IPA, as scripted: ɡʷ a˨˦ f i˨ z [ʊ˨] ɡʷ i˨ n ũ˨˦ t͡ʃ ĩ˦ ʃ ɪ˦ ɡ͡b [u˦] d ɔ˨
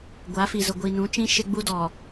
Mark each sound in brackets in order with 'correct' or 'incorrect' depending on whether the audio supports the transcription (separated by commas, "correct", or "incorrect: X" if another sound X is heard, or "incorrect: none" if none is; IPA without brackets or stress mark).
correct, correct